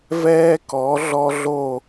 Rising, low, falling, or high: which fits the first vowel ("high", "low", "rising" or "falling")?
high